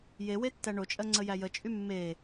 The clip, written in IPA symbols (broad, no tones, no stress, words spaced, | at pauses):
jewe tːæɳot͡ʃʼɜ ŋ͡ǀəjæjət͡ʃʼy mːe